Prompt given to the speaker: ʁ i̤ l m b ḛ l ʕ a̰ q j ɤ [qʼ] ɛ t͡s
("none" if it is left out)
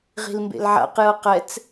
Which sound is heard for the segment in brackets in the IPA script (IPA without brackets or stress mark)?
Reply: q